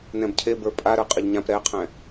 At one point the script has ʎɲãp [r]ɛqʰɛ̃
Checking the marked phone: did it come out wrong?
yes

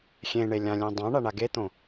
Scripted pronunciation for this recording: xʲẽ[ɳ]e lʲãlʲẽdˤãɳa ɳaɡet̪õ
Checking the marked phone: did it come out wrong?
no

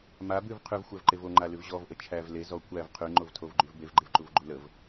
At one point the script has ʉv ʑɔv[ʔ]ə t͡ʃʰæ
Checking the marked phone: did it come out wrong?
no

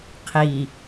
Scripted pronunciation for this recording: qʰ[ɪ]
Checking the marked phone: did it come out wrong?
yes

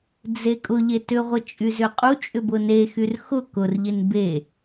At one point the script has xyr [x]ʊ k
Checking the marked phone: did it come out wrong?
no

